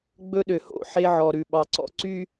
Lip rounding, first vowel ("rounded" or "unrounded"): rounded